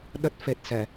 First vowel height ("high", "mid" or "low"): mid